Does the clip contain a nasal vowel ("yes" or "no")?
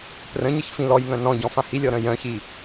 yes